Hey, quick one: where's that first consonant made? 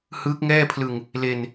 throat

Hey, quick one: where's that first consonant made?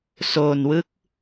tongue tip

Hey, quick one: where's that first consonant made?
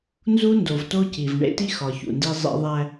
tongue tip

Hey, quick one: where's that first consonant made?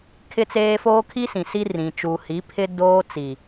velum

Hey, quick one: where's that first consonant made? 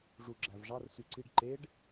retroflex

